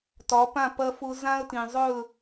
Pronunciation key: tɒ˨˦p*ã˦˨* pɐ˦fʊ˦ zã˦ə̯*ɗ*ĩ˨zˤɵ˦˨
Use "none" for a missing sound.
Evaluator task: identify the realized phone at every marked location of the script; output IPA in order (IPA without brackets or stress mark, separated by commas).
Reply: ã˦˨, t